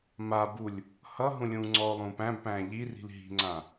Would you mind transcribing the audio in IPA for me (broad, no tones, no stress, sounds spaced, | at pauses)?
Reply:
m a b u lʲ | h ʌ ɦ ũ lʲ ũː ŋ͡ǀ ɔ o̯ lˠ ũː p æ̃ b p æ̃ː ʎ i r i̤ l ɦ i̤ ŋ͡ǀ ã